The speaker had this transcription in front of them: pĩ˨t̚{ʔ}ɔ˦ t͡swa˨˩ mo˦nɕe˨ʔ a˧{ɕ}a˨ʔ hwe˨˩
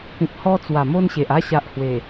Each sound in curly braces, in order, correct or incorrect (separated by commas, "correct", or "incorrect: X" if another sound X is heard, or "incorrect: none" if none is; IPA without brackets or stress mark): incorrect: h, correct